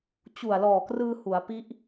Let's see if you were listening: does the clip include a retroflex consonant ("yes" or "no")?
no